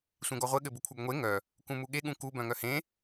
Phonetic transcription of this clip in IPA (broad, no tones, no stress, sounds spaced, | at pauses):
sʷ ẽ ɡ ɔ ʁʷ ɘ ɠ ɘ b u kʷʰ œ ɡ ŋʷ e ŋ œ | k ũ m u ɠ e ɠ ũ k u b œ̃ ŋ œ h ẽ